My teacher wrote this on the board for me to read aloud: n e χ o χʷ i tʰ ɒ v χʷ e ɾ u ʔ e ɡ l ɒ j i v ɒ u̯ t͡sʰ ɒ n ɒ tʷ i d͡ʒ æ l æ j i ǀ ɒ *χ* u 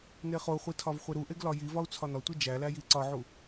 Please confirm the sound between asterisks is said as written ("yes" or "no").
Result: no